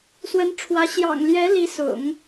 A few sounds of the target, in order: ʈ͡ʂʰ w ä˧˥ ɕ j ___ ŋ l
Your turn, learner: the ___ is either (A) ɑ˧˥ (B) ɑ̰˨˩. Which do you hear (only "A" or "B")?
B